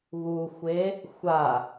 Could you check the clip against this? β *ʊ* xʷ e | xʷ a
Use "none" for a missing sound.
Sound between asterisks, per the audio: u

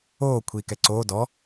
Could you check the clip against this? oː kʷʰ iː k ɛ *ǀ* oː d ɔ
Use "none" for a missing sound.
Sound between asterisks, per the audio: ǀ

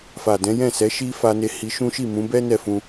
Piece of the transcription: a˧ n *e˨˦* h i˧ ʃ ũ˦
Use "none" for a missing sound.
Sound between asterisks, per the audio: e˧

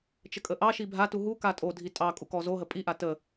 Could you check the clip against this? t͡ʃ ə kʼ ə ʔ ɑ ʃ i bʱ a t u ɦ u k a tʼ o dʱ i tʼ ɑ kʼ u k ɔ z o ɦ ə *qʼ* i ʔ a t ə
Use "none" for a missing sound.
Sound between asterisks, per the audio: pʼ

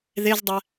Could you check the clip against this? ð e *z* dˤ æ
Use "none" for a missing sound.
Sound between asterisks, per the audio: z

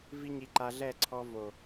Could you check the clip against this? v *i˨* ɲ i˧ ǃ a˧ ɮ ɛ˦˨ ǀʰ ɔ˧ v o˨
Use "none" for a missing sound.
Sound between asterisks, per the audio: i˦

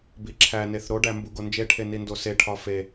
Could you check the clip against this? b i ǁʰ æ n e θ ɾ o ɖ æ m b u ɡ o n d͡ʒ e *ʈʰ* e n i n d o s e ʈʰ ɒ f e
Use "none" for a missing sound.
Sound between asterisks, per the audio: ʈʰ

